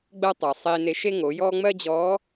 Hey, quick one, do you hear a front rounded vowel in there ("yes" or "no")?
no